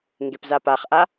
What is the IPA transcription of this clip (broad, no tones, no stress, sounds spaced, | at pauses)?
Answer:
ŋ ɡ e p z a p a χ ʔ a